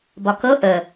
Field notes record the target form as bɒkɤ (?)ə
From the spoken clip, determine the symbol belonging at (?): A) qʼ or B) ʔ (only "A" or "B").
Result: B